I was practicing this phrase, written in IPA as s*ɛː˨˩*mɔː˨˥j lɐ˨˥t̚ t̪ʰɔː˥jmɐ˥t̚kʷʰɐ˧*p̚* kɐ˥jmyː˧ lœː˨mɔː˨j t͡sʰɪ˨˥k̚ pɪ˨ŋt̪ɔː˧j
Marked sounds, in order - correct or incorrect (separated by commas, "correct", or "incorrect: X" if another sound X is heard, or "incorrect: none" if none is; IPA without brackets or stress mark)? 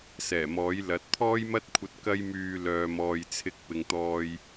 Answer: correct, incorrect: t̚